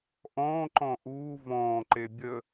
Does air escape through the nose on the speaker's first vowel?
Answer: yes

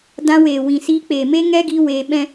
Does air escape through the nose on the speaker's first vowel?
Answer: yes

